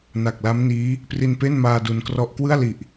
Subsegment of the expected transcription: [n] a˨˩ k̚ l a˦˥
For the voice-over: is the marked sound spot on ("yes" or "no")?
yes